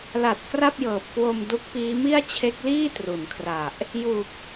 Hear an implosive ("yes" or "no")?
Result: no